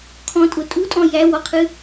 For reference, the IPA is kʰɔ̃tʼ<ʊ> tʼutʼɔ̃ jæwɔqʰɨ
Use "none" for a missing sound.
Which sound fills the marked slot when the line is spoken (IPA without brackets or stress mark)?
ʊ